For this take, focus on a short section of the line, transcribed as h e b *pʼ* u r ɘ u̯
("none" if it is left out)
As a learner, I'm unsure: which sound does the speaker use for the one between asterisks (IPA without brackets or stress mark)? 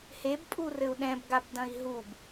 pʼ